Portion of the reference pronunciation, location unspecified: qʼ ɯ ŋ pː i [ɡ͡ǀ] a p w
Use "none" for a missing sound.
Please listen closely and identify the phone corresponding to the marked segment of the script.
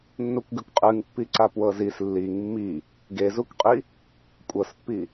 ǀ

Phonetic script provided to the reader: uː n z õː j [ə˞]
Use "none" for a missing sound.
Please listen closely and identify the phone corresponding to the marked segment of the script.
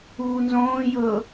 ɤ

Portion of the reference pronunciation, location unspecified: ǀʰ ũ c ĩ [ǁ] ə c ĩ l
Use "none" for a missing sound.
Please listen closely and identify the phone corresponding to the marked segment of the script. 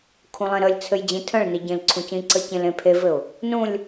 ǀ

